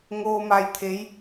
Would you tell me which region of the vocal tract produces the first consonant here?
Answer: velum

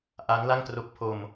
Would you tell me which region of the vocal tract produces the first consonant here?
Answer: throat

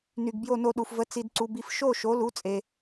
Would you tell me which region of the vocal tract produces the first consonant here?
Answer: tongue tip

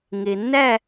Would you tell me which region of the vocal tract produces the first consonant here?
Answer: velum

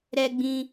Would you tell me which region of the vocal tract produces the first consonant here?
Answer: tongue tip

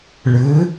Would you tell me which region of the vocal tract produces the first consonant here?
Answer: retroflex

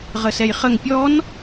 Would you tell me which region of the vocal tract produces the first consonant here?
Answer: uvula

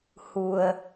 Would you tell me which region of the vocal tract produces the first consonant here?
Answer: throat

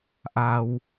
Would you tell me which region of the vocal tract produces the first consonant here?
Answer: throat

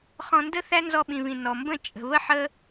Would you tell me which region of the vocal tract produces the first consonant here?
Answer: uvula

